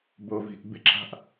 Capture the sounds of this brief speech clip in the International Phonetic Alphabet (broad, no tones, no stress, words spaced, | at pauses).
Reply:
bovi̤ʔ bɪǁa̤ʔ